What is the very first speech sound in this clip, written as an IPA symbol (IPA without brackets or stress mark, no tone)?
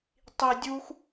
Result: tˤ